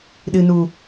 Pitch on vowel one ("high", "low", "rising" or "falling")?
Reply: low